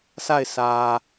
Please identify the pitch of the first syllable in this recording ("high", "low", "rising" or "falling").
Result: falling